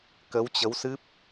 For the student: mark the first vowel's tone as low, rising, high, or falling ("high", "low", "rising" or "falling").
rising